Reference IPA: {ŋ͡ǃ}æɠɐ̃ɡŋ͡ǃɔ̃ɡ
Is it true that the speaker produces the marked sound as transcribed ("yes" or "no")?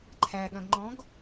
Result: no